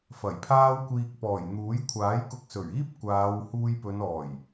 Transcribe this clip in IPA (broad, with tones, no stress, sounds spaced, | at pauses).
f ɐ˨˩ j pʰ aː˥ w kʷ iː˧ k̚ p ɔː˨˩ j n̪ uː˨˥ j kʷʰ aː˨˥ j k ʊ˧ k̚ s ɵ˨˩ ɥ iː˥ p̚ kʷ aː˨˧ w h uː˧ j p ɵ˨˧ n ɔː˨˩ j